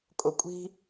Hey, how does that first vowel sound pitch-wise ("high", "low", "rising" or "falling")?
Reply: low